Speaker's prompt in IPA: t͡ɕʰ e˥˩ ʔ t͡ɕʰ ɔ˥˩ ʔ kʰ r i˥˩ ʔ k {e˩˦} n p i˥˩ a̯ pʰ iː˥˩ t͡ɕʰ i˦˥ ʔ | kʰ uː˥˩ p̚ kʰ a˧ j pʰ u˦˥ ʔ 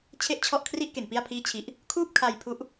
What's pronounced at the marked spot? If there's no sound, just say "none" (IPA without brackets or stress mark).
e˩˦